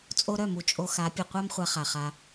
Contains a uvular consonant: yes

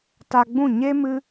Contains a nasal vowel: yes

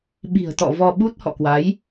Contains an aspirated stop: no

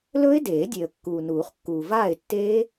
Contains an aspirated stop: no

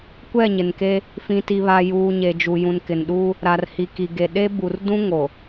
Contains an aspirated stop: no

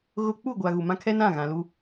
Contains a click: no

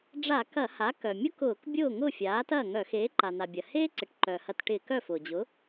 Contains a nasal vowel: no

